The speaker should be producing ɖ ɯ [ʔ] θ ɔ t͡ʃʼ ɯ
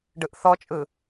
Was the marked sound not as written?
no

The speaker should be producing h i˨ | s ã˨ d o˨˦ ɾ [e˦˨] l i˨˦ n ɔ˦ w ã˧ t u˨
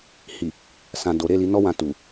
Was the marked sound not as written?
no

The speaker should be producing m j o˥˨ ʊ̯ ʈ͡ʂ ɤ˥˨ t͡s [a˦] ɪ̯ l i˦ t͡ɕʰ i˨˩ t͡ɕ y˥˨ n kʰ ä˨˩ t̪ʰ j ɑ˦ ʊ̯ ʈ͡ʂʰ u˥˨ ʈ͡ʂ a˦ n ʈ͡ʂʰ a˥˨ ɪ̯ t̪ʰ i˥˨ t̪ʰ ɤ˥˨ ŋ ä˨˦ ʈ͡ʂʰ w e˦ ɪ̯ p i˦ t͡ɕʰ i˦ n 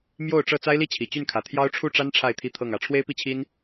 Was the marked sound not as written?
no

